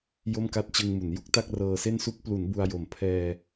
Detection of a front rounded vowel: absent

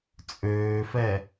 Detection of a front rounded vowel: present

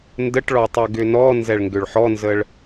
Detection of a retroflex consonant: present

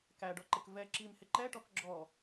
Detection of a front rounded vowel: absent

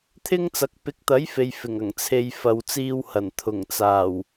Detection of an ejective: absent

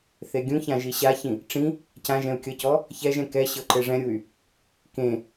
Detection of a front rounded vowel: present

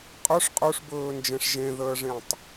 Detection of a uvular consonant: present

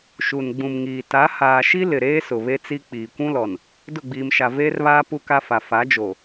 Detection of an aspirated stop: absent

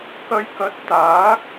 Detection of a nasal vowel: absent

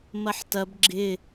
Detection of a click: present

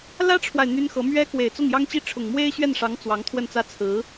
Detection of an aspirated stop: present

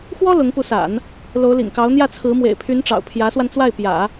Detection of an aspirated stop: present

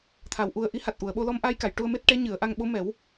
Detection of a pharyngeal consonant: absent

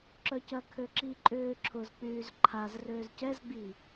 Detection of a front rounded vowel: present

